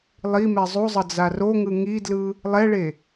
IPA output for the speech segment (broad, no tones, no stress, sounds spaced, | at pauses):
lˠ i m ɛ zˤ u zˤ ʌ d͡z a r o ŋ ɯ ŋ i d l ɯ | lˠ ɛ ɭ e